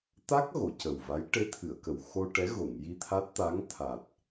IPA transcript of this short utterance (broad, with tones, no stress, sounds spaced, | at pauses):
t̪ a˦˥ k̚ ɣ o˨˩˨ c ə˨˩ w v a˧˥ j ʈ e˧˥ t̪ʰ ɨ˨˩˨ ə̯ k ə˨˩ w x o˧ ʈ ɛ˧˥ ɣ o˨˩˨ ŋ j i˧ t̪ʰ a˦˥ t̚ t̪ a˧˥ ŋ t̪ʰ a˨˩ t̚